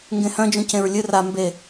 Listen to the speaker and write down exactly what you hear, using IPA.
ŋ ɡ ẽ h œ̃ d͡ʒ ũ c ẽ ɹ lʲ ɨ r a m b e

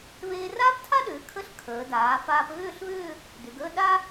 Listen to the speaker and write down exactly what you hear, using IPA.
β eː˧ r aː˥ p tʰ a˥ ɗ ʏː˩˧ kʰ ə˥˧ ɬ kʰ əː˩˧ d aː˩˧ f aː˧ p ɣ ʏː˥˧ ɬ β ʏː˥˧ | d ʏ˩˧ ɡ əː˥˧ ɗ a˥

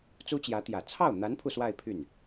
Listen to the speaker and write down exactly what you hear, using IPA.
t͡s u˥ t͡ɕ j ä˧˥ t̪ j ä˨˩ t͡sʰ ɑ˥˩ ʊ̯ n̪ a˧˥ n pʰ u˥˧ s w a˥˧ ɪ̯ pʰ y˥˩ n

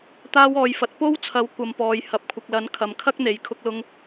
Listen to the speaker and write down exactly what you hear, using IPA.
t̪ aː˧ w ɔː˨ j f ɐ˨ t̚ p o˥ w t͡sʰ ɐ˨˥ w kʷ ɐ˨ m p ɔː˨ j h ɐ˨ p̚ kʷʰ ɪ˨ k̚ l ɐ˨˥ n kʰ ɐ˨ m kʰ ɐ˥ k̚ n̪ e˨ j kʰ ʊ˧ k̚ l ʊ˧ ŋ

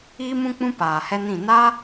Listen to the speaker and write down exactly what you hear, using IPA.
iː˦ m ũ˦ k͡p ũ˦ p aː˨ h ɛ˦ n ĩ˦˨ n a˦

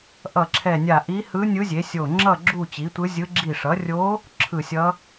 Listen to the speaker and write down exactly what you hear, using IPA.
ʔ ʌ˧˩ ǁʰ ɛ˧˩ nʲ a˧˩ ʔ i˧˥ h ɯ˧˥ nʲ ɯ˧˥ zʲ e˩˥ sʲ o˧˩ ŋ͡ǁ ʌ˥˨ ɡ͡ǁ u˥˨ t͡ɕ i˩˥ tʷ ɯ˧˥ zʲ ɯ˧˥ ɡ͡ǁ i˧˩ ʂ ʌ˩˥ rʲ o˧˥ | ǁʰ ɯ˧˩ sʲ ʌ˧˥

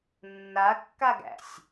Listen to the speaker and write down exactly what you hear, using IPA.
nː a kː a ɡ æ̰ sʲ

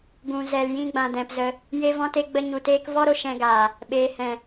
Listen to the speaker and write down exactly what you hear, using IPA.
ɡ ũ˨ z ɛ˨ l j ĩ˧ ɡ͡b ã˨ d ɛ̃˨ p z ə˧ | j e˧ v ɔ̃˧ t e˧ ɡ͡b ə˧ ɲ u˧ t eː˦ k v ɔ˦ ɾ o˧ ʃ ɛ̃˧ ɡ aː˨ | ɓ eː˨ h ɛ̃˨

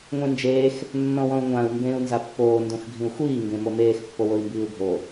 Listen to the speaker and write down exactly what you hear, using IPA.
ŋʷ ẽ n d͡ʒ eː x | nː ɔ̃ w ɔ̃ u̯ ŋʷ ã u̯ m b ẽː u̯ n z a pː oː n d õ x ɡʱ ĩ u̯ xʷ iː ŋ ɡ ẽ m o m eː x pː o w o i̯ m b iː u̯ ɡʱ o

